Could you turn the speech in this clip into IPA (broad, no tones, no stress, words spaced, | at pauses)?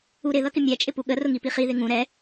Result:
uɾɪ ðʌkɪmʲæ t͡ʃʼɪpuɠə rʊŋipiχi ðɪŋũ ɾɛ